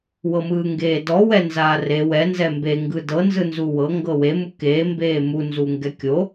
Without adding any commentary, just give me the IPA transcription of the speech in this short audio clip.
w ɤ m ɯː ŋ ɡ eː d ɔ w ɛ n z aː r e w ɛ n z ɛ m b e ŋ ɡ ɯ d ɤ n z ɯ n z u w ɤ ŋ ɡ ɤ w e m u k eː m b eː m u n z u ŋ ɡ ɛ kʲ o

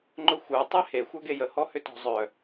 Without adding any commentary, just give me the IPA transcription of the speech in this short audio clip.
ŋ͡ǃ ʊ xʷ œ tˤ e h e xʷ œ ɡ e j ə h ɔ h ʏ t ɔ̤ zˤ œ

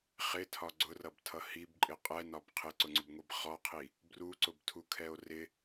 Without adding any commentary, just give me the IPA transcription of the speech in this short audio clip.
χ ɪ tʰ ɒ ɡ͡ǀ ʊ r ʌ b tʰ ʌ h i b ǃʼ ɪ qʼ ɛ n ɒ b qʰ ɪ ǀ ʊ ŋ͡ǀ ʊ b ŋʷ i b χ ɔ qʰ i | b r u ǀ ʊ b tʰ u kʰ ɛ o̯ r ɪ

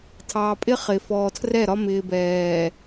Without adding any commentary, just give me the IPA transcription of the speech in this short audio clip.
tʰ ɑː˨ pʼ ɪ˦ χ ɪː˨ f ɔː˨ tʰ r ɛ˦˨ ɾ ɒ˦ m ɪː˨ b ɛː˨

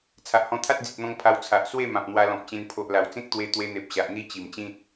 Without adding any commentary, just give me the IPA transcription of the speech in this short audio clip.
t͡sʰ a˨ ʔ h ɔ̃˧ t̪ʰ a˦ t̚ d͡z i˨ t̚ n̪ ɔ̃˧ ŋ pʰ a˧ w t͡sʰ a˨ ʔ s w e˥˧ m ã˨ p̚ n̪ w a˧ l ɔ̃˨ p̚ t͡ɕ ẽ˧ n pʰ o˨ ʔ l a˨˩ w t͡s ẽ˦ k̚ t̪ w e˧ t̪ w e˧ n̪ e˨ p̚ ɕ a˨ ʔ n̪ i˦ t͡ɕ i˨˩ m t͡ɕ ĩ˦ t̚

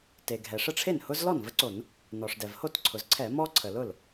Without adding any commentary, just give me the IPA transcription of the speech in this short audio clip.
t e˩ ɡʱ ɛ˩ ʂ ə˥˩ ʈ͡ʂʰ e˥˩ n h ʊ˦ z l ɔ˥˩ n v ə˦ ǀ o˧˩˧ n | n ɔ˩ ʂ d ɛ˩ v h o˥˩ t ǀʰ ʊ˩ z ǀʰ ɛ˧˩˧ m ɔ˦ ǀʰ ə˩ l ʊ˥˩ l

